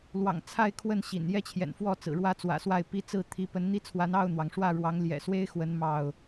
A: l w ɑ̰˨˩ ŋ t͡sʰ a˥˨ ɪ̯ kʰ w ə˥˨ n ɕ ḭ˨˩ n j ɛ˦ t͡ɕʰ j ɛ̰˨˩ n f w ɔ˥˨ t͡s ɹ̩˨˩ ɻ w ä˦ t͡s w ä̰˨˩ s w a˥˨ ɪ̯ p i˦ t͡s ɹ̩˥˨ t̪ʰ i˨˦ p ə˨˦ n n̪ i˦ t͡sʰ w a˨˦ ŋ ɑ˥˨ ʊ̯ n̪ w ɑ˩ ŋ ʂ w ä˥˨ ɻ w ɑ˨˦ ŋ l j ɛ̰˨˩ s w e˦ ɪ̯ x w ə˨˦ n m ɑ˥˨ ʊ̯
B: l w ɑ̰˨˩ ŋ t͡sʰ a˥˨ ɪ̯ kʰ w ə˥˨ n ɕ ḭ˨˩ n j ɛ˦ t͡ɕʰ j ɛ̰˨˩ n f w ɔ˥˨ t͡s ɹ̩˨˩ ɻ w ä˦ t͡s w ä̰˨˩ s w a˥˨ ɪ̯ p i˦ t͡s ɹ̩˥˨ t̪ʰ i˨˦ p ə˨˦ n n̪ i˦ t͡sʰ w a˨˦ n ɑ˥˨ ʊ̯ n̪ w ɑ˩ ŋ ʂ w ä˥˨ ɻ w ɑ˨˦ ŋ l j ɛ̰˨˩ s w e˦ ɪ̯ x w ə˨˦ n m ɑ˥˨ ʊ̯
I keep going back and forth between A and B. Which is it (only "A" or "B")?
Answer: B